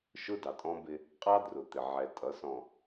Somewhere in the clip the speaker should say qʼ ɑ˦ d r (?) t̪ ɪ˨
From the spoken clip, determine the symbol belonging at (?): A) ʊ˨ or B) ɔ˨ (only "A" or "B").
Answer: A